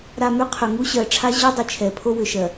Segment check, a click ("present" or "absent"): absent